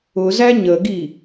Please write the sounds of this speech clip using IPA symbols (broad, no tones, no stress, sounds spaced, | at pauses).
ʊ z æ ɲ ə ɡ i